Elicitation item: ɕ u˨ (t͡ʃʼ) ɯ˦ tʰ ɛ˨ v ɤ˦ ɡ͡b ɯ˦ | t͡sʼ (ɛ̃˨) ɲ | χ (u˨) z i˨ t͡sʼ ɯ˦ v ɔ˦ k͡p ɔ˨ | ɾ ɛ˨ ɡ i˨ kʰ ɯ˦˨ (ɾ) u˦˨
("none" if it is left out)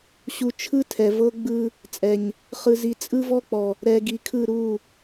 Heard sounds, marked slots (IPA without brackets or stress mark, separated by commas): t͡ʃʰ, ɛ˨, ɯ˨, ɾ